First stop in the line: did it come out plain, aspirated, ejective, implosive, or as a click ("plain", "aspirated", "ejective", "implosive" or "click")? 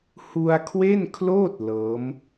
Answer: aspirated